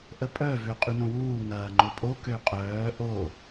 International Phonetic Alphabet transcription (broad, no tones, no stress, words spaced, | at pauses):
ʔəpʼœ vøqʼynõwuː ŋɐːŋ͡ǃʊpʼo køqʼœː ʔo